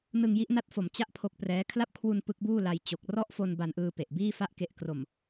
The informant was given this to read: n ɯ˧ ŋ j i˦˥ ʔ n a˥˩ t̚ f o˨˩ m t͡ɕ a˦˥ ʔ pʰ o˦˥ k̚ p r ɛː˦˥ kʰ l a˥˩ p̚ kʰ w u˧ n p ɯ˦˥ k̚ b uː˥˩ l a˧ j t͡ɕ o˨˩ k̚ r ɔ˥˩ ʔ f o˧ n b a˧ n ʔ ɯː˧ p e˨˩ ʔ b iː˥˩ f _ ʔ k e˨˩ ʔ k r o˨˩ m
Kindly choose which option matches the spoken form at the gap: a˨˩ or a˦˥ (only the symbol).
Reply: a˦˥